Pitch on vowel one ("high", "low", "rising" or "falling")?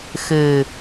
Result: low